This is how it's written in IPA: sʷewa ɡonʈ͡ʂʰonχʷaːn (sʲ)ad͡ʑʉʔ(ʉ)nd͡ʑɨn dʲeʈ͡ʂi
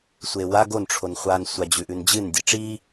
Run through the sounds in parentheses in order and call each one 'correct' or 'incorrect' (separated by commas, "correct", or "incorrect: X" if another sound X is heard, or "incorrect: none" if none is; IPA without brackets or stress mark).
incorrect: sʷ, correct